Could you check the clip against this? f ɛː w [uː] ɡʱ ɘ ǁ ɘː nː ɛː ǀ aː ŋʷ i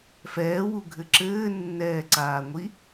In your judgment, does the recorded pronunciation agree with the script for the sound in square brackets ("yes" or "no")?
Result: no